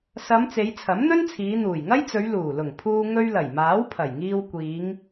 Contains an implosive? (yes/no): no